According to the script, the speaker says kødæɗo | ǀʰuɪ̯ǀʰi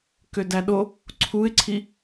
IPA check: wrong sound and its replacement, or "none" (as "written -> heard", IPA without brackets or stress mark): none